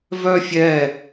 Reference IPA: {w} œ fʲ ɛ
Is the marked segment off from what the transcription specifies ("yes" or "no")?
yes